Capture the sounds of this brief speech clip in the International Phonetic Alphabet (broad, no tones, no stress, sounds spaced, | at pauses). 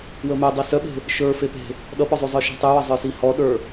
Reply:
w ə m œ dˤ i s œ ɓ e̤ | ʃ ə˞ f e p e̤ | ɗ ʌ p ɔ zˤ y zˤ ə˞ ʃ e̤ tˤ y w ʌ zˤ ə˞ s i h ɔ ɗ ə˞